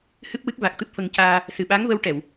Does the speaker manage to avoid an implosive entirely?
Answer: no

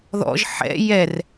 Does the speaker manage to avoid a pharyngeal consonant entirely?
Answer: no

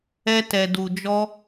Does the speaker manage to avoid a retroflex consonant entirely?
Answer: yes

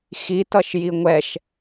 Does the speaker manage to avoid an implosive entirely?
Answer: yes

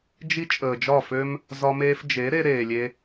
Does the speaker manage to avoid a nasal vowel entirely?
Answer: yes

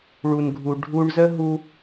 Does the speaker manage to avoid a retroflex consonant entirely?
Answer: no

